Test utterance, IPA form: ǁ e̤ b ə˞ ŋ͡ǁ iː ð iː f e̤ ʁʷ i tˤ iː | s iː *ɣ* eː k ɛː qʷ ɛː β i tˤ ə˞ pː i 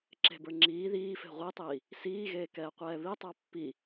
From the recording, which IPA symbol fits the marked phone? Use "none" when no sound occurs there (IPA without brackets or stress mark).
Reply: ɣ